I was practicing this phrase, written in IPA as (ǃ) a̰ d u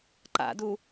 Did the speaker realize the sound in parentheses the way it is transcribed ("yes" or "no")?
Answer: yes